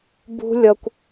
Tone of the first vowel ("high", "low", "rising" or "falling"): high